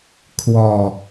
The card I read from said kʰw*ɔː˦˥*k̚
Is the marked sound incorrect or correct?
incorrect